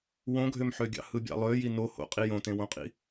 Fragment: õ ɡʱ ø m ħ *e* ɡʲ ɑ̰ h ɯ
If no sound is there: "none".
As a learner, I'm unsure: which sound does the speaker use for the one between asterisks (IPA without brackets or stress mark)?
ø